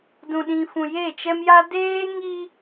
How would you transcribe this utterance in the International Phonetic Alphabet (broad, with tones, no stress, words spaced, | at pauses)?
dũ˨ɗĩ˨fũ˨ je˦˨t͡ʃɛ˦mja˦ deː˦ŋi˦